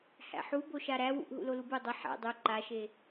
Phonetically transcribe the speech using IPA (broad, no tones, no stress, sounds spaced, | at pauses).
h æ̰ ħ u b o ʃ a ɾ æ w ṵ ʔ ɦ ṵ l o l u b u dˤ ə ħ æ̰ dˤ u ǃ a ʃ e